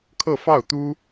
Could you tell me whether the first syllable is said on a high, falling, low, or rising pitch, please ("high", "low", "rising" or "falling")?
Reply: falling